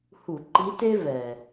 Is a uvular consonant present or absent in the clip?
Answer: absent